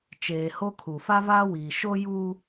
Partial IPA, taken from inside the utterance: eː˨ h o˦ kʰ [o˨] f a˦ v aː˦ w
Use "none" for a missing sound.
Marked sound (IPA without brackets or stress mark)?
u˨